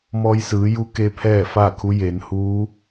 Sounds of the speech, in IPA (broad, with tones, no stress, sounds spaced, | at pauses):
m ɔː˧ j s ɯː˩˧ j u˧˥ k e˧˥ pʰ ɛː˥˨ f aː˥˨ kʰ u˧˥ j e˩˧ n h uː˧˥